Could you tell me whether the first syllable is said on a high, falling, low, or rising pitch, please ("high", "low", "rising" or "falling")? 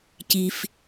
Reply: low